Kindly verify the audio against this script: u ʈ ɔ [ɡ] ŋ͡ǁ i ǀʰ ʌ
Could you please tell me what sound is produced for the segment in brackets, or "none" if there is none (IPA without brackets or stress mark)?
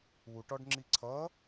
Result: ɖ